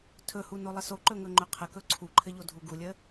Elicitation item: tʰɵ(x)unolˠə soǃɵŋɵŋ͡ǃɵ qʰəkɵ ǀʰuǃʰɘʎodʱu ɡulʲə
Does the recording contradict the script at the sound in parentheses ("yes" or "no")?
yes